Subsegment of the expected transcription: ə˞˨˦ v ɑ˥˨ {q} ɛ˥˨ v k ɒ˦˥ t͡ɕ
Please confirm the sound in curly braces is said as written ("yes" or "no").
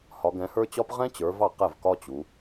yes